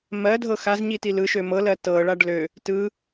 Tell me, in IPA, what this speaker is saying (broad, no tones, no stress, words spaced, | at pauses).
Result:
mɜdʱɤ xazɲi tilɯʃø mɤlɜ tɤɭaɖ lø | tɯ